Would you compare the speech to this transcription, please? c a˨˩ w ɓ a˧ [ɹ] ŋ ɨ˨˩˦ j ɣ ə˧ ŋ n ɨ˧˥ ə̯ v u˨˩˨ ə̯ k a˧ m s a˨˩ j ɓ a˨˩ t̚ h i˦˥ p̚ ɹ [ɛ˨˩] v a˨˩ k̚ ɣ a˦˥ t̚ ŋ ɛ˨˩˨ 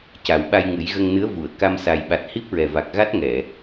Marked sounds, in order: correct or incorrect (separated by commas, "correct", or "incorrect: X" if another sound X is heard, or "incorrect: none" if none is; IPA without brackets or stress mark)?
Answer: incorrect: j, correct